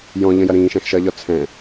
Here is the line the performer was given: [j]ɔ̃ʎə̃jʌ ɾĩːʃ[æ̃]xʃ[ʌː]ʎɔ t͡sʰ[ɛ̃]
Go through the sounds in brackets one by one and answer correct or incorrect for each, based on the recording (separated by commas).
correct, correct, correct, correct